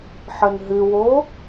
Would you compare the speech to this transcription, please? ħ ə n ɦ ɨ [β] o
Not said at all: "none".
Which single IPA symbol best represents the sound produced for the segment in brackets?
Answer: w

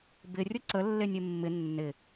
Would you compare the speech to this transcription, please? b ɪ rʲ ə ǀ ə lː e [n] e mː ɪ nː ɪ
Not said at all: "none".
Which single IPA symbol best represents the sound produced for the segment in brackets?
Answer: nʲ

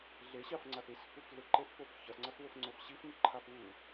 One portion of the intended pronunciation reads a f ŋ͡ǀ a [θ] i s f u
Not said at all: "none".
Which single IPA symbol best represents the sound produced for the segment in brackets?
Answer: θ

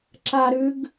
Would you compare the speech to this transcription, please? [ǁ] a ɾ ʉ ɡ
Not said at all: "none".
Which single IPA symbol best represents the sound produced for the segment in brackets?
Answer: ǁ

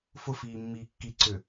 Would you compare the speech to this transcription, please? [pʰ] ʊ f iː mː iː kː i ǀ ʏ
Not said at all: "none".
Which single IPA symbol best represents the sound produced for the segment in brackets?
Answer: f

